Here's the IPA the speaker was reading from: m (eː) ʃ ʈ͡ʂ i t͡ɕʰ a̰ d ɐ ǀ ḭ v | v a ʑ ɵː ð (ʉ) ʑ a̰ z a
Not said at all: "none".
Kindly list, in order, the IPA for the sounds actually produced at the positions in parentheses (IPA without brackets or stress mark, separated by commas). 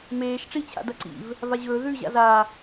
eː, ʉ